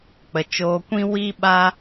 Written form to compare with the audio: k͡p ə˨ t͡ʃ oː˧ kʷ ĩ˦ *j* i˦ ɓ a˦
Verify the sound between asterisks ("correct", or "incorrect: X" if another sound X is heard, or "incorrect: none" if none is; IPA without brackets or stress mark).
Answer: incorrect: w